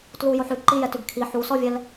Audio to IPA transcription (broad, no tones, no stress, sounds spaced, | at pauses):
t l u j o ħ ʉ ǃ i j ɛ t ʉ ɡ kʰ i ħ u s ɔ vʲ ɛ l